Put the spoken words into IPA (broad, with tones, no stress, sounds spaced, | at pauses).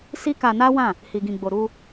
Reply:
s i˦ k a˧ n a˦ w ã˦˨ | h i˧ ɡ ĩ˧ ɡ͡b o˧ ɾ u˧